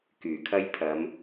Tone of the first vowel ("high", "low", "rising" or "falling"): low